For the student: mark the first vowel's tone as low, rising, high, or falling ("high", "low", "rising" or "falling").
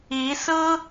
rising